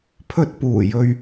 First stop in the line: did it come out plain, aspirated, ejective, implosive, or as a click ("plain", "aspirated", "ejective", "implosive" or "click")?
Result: aspirated